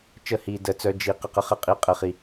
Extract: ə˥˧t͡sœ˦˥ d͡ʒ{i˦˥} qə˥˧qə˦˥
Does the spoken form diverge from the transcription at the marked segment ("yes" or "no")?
no